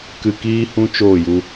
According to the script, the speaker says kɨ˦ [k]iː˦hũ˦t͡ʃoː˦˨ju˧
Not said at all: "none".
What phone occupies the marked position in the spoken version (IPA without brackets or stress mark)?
k